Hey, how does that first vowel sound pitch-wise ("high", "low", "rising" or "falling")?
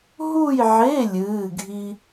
falling